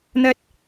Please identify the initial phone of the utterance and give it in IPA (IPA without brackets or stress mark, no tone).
n̪